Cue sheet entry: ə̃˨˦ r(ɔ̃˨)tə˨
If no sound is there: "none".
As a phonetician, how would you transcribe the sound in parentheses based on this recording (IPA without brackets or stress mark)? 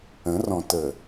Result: ɔ̃˨